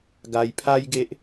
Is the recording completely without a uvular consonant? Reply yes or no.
yes